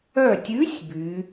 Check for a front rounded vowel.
present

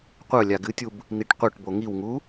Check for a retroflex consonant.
present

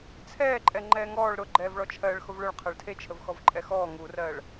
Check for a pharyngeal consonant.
absent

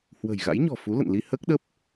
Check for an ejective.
absent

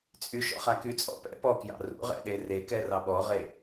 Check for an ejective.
present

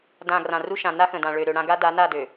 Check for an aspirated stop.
absent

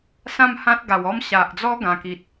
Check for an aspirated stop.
absent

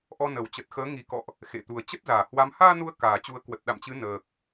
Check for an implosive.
present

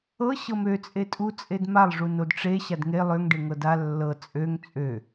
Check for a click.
absent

